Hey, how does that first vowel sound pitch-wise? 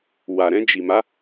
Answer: low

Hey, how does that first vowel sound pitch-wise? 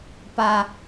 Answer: high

